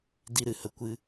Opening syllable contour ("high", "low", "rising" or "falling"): high